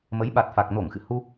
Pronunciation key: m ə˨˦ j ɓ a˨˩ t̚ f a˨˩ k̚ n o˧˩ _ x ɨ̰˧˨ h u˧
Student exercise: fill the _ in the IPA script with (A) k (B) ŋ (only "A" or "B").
B